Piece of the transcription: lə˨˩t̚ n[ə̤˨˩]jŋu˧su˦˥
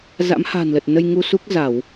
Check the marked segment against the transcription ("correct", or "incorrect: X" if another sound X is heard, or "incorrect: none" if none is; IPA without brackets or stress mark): incorrect: ə˧